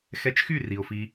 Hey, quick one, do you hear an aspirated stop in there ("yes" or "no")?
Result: no